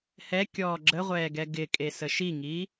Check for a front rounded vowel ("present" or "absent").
absent